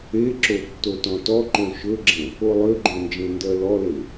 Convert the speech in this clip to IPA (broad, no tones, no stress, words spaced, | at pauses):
eǁo tːotɔ̃tɔǃõ ʃɵɡ͡ǁẽ | olˠøɡ͡ǃõ nd͡ʒẽndɜlɔle